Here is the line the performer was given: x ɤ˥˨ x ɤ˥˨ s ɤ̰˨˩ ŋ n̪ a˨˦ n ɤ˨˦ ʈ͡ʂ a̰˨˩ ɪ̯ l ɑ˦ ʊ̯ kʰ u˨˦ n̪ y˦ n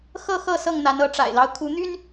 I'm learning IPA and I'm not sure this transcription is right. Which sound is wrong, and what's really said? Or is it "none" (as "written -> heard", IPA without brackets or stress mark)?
ɤ̰˨˩ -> ɤ˥˨